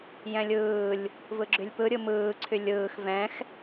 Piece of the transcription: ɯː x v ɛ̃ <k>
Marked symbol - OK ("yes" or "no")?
no